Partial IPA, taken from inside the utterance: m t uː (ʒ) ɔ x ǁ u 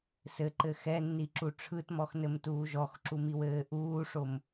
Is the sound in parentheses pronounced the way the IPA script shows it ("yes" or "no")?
yes